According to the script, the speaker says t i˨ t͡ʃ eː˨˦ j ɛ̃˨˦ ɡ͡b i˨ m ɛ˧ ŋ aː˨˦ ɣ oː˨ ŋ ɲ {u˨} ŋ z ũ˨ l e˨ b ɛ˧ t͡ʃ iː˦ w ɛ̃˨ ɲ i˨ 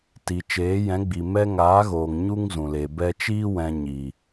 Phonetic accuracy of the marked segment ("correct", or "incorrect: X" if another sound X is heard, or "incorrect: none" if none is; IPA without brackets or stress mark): incorrect: u˦